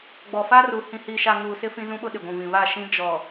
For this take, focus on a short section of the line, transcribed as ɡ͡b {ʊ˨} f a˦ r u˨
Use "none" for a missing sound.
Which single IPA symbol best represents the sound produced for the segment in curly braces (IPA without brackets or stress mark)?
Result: ɔ˨